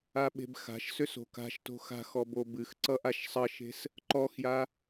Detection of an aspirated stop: absent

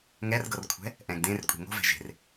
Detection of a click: absent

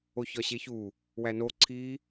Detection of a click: present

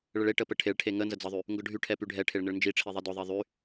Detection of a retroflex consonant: present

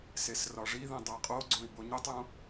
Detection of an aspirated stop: absent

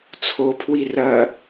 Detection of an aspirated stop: present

